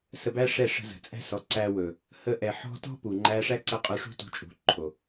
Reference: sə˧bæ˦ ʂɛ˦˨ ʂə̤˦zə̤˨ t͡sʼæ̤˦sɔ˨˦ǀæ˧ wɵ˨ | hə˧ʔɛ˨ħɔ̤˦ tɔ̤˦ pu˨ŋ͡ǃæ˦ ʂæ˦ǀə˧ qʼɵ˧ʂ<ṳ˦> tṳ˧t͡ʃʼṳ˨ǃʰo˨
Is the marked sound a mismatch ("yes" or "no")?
no